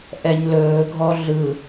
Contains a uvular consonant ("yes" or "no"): no